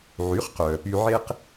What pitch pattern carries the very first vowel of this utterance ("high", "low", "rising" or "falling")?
rising